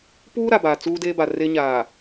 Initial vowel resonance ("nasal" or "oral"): oral